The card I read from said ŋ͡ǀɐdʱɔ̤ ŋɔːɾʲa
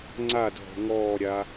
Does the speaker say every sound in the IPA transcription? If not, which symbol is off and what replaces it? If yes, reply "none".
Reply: ɐ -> a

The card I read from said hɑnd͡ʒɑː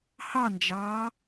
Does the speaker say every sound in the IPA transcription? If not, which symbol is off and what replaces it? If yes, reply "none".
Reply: none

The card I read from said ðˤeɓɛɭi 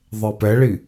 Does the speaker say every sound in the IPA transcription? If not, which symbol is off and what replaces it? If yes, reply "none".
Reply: ɓ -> p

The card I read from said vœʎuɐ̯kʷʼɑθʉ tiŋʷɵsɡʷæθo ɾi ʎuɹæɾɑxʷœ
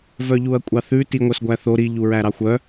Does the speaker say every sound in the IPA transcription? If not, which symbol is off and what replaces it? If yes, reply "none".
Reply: ɵ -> œ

